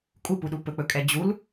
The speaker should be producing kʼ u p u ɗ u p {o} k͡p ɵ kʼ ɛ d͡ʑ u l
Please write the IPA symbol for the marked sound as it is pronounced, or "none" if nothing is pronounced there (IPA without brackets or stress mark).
ɵ